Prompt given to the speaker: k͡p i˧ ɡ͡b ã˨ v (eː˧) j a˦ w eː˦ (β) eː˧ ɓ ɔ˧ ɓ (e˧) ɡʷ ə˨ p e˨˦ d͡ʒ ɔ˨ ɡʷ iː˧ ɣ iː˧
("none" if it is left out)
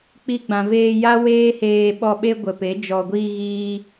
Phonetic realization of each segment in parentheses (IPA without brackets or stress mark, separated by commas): eː˧, h, e˦